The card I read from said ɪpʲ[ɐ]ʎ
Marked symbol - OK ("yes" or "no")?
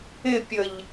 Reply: no